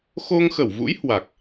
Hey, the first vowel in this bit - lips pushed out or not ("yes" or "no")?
yes